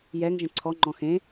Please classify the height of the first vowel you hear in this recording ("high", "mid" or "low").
mid